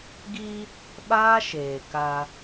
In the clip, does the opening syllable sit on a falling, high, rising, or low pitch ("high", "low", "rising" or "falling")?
high